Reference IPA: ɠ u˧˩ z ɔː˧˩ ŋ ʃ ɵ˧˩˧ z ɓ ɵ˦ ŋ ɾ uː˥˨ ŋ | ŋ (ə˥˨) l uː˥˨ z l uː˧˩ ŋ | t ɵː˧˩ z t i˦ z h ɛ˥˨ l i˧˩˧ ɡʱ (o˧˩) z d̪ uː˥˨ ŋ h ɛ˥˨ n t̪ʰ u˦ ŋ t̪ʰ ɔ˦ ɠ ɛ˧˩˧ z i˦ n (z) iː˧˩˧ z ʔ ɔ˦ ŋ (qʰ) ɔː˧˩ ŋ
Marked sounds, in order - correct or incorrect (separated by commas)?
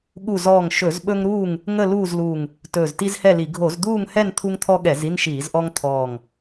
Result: correct, incorrect, incorrect, incorrect